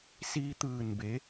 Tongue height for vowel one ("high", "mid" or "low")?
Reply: high